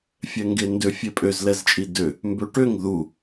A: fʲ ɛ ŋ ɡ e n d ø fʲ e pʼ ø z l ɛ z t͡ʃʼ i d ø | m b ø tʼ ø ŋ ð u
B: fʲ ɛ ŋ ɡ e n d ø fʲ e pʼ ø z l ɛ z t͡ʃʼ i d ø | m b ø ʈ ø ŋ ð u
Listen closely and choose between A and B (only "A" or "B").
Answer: B